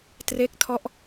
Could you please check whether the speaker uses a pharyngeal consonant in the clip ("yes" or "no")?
no